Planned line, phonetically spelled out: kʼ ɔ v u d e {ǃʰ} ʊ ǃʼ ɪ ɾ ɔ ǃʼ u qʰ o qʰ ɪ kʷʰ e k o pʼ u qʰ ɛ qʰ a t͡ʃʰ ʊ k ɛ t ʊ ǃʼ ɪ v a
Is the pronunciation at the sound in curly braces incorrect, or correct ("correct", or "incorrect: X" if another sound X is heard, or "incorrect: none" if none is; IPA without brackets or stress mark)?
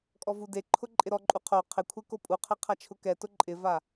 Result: correct